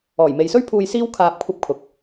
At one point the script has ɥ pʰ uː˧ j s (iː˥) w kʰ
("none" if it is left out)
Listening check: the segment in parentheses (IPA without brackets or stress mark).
iː˥